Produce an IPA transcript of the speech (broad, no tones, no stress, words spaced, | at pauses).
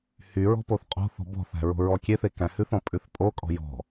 hyɹɔ̤ poθqʼo̤θɔ̤ bɔ̤θæ̤ ɹo̤ɹɔkʲeθe kæ̃hʉθɔ̃ pʼʉθpʼokʼɔ̤ jɔ̤